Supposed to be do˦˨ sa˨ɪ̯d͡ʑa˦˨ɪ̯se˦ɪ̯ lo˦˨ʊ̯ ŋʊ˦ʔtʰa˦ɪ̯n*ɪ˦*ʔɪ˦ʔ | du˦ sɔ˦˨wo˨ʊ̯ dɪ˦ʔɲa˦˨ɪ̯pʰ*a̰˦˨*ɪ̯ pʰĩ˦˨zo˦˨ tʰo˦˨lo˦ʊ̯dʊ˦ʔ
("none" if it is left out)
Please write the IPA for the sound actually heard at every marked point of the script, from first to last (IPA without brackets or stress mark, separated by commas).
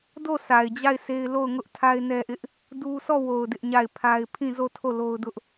ɛ˦, a˦